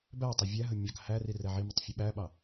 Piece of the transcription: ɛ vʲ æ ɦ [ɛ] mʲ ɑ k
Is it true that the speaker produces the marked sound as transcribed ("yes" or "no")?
no